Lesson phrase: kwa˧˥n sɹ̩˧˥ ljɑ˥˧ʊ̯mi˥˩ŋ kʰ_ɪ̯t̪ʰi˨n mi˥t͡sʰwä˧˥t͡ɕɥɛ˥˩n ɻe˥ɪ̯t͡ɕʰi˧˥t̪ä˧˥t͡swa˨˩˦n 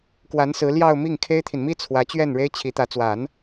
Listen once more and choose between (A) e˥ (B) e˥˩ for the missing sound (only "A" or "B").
A